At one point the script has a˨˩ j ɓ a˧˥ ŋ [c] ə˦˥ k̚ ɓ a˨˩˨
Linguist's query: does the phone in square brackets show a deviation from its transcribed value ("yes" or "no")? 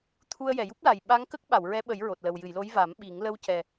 yes